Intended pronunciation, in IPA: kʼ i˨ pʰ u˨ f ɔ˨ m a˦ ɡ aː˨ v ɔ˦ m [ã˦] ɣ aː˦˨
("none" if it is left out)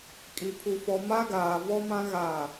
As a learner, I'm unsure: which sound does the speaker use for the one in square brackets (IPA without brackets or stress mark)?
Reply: ã˦